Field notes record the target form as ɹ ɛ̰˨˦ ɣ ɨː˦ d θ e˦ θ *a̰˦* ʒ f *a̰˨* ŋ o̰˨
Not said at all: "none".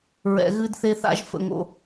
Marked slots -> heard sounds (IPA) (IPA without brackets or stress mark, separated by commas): a̰˦, ə̰˨